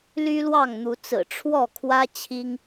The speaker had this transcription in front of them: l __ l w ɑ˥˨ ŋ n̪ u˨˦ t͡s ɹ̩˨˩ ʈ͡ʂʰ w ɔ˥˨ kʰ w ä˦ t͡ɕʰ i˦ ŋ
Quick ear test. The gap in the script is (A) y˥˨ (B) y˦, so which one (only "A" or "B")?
B